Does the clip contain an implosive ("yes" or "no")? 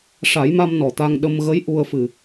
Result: yes